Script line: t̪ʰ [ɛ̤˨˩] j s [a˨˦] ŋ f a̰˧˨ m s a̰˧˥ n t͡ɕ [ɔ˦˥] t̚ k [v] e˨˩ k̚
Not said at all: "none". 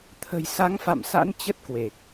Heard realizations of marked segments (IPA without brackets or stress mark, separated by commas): ə̤˨˩, a˨˦, ə˦˥, w